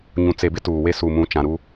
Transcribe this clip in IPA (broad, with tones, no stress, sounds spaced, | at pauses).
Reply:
ɲ ũ˨ t͡s e˨ b ɪ˦ t uː˨ w e˦ s u˨ m ũ˨˦ t͡ʃ ã˨ ɾ u˦